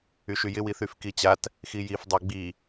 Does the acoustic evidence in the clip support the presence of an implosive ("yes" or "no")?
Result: no